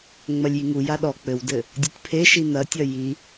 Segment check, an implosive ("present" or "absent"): present